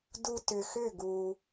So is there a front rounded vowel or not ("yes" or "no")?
yes